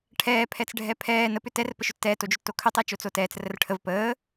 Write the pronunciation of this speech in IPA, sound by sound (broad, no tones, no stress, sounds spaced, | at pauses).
ʈʰ ɛː pʰ ɛ t͡s ɖʱ ɛ pʰ ɛː n ə p ʏ t ɛ r p ə ʃ ʏ tː ɛː t o d͡ʒ ʏ tː o kʰ ʏ tˤ əː t͡ʃ o t͡s oː t ɛː t͡s r ə r ʈʰ ə v p əː